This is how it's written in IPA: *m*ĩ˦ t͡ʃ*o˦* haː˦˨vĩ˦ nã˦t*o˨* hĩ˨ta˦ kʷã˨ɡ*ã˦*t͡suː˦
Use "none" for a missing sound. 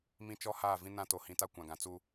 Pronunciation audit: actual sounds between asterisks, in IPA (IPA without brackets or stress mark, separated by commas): m, ɔ˦, o˨, ã˨